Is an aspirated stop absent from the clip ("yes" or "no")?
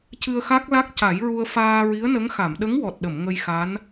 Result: yes